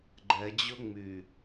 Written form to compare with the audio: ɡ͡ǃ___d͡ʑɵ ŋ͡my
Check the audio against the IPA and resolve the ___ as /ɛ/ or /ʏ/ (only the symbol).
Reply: ɛ